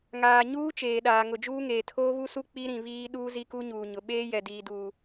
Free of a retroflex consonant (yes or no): yes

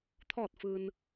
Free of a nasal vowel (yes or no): yes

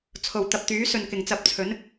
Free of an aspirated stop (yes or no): no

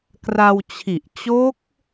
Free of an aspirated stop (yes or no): no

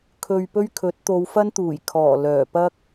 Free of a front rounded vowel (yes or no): no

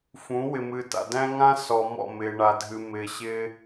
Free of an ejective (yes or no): yes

